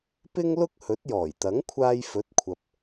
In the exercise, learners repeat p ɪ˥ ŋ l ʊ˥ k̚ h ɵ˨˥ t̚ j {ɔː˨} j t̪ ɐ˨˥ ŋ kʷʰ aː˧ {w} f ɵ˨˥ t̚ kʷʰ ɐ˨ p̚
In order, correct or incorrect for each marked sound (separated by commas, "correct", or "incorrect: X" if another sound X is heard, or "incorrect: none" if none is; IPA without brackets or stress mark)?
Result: incorrect: ɔː˨˩, incorrect: j